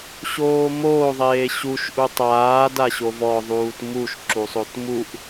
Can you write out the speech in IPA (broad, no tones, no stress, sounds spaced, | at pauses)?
ɕ oː m oː ðˤ eː ɕ u ʃ ʔ u tˤ aː d a ɕ o v ɔ ðˤ uː t m u ʃ ǁ u sˤ o t m u ʔ